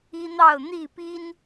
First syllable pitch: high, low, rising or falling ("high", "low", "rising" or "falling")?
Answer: high